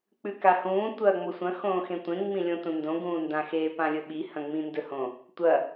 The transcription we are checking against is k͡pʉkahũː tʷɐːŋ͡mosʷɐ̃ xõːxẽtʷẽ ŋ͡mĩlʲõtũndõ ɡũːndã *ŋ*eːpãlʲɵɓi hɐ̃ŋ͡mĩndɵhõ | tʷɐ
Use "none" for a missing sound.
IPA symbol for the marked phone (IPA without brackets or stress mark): x